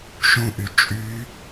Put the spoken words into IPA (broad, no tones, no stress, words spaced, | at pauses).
ʃũʔy t͡ʃʼy